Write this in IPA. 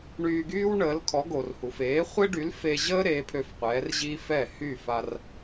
ɳyː˧ɡyː˥wɳəː˩˥lkʰɔ˩˥ ɡo˩rhu˩feː˩˥ χʷe˥ɖy˩˥lfe˧ʑəː˥ ɾeː˩˥pʰø˧fqʷɛː˩˥rʑiː˥f ɛ˥˩ hy˥˩fa˧r

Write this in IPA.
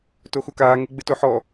toxukaː ŋeɡ͡bɪtoħɔ

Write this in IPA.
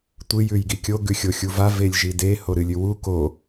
tʷɨ jʉjɡikʲo ɡʉxʲoxʲuva velʲʒide hoɾɨlʲʉwu ko

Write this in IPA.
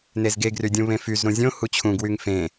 nezɡeɡry dʲũβẽfyz ɾũzʲõ hut͡ɕʰũɡwyŋ fẽ

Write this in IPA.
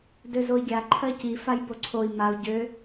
døzoi̯ɡʲa ǃʰɜci fajboǀʰoi̯ mau̯ ɟø

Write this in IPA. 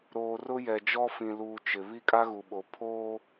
ɾoː˨rʊ˦jɛ˨d͡ʒɔ˦ fĩ˨luː˨ t͡ʃɪ˨ βi˦kʼa˦ɣu˨ɓo˨ pʰoː˦

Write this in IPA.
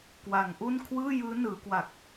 kwa˩˦ŋʔu˥˩n kʰwɯː˥˩jɯː˦˥nɯː˩˦kwa˨˩k̚

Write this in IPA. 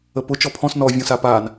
əpʊ t͡ʃɔpʰɔ̃s nɔ vʲɔ̃sapan

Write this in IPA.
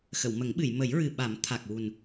xə˨˩˨wmə˨˩˦ŋɓɨ˨˩˨j mə˨˩˦jɹɨ˨˩ɓa˨˩˦m t̪ʰa˨˩k̚wu˨˩n

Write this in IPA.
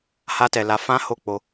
ha˧tɛ˨ la˧ fã˦ ho˦˨ k͡po˧

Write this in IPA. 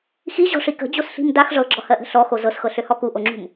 xiʑɔ̤ʂi kə̤d͡ʑosɬi̤m dax ʐɤɡ͡ǁɔhɜʔə̤ ɬɔxo zɤsxɤɬøhɔ kuʔoŋ͡ǁṳm

